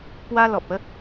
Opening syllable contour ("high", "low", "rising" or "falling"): high